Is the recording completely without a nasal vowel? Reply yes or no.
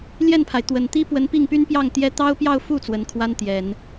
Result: yes